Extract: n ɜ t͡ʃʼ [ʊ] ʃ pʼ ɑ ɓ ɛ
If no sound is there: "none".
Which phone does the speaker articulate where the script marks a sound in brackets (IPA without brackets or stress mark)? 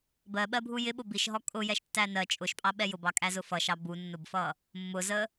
ʊ